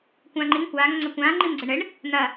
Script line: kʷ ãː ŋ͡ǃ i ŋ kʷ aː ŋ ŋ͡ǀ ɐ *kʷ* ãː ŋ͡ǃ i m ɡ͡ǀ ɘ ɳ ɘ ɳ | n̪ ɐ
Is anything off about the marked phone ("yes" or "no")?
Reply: no